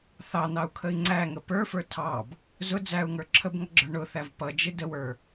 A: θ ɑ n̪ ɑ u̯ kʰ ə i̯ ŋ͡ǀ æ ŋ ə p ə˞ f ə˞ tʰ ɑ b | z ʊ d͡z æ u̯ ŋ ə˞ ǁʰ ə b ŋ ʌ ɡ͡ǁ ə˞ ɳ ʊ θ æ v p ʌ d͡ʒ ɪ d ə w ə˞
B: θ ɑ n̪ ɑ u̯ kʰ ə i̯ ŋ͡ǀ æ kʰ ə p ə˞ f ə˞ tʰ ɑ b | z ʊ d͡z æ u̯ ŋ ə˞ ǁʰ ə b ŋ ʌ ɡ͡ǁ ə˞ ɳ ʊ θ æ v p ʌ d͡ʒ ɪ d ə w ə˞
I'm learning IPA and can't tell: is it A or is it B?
A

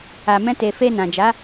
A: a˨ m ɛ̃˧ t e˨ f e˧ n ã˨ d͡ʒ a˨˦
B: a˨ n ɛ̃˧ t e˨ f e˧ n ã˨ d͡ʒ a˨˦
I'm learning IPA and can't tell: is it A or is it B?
A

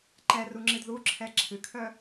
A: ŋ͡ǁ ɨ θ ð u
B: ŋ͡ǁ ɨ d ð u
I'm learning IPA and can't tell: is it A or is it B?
B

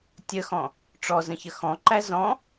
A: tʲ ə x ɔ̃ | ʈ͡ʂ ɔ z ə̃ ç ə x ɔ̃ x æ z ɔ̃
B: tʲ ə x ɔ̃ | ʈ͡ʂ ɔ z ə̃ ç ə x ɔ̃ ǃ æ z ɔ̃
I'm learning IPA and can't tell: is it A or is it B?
B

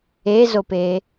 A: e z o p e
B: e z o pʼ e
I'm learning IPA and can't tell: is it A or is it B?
A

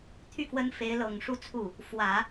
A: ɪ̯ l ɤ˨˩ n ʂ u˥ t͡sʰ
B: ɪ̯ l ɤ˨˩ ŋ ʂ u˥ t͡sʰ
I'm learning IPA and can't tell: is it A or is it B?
B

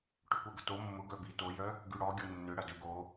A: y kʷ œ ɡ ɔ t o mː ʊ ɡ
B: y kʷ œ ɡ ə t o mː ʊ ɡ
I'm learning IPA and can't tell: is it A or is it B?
B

